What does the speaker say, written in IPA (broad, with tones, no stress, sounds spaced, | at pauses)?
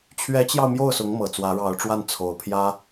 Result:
t͡ɕʰ ɥ ɛ˧˥ t͡ɕ j ɑ˧ ʊ̯ m j o˥˩ ʊ̯ s ʊ˧˥ ŋ m ɤ˨˩ t͡s w ä˧˥ ɻ ɑ˧˥ ʊ̯ ʈ͡ʂ w a˥˩ n t͡sʰ o˧˥ ʊ̯ pʰ j ä˥